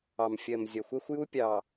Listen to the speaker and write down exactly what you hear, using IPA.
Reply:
ɑ˨mfʲɜ˨mzʲɒ˨ xʷɛ˦xʷju˦pʲɑ˨

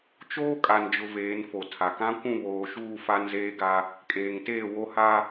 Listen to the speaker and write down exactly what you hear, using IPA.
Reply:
t͡ʃoː˦kʼa˨nd͡ʒʊ˨ veː˨˦nfo˨tʰa˨ kã˦kʷũ˦˨βoː˨ʃuː˦˨ fa˦nzeː˦ɡa˦ | kʼeː˨ŋteː˦˨ wo˦ha˦

